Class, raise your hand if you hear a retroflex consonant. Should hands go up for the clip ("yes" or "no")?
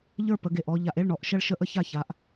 yes